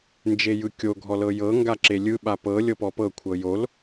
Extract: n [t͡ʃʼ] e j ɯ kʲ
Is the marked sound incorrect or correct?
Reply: incorrect